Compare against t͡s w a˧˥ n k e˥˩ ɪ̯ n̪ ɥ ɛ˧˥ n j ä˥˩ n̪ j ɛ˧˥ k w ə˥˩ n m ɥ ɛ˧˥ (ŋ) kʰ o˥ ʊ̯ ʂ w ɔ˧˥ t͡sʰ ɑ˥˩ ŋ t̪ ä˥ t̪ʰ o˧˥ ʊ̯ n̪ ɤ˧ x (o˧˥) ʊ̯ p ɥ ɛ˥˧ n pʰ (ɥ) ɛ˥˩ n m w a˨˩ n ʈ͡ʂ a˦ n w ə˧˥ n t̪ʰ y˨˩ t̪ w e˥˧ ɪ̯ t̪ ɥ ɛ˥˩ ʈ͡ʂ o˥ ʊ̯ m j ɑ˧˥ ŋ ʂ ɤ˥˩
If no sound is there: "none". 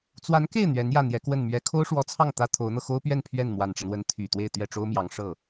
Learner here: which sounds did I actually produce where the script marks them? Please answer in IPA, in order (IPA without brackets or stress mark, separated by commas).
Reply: none, o˥, ɥ